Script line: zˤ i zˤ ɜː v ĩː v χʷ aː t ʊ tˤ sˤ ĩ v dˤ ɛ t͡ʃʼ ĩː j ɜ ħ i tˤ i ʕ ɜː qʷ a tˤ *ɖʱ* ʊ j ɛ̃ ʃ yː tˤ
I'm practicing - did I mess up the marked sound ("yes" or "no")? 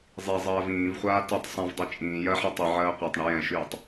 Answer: yes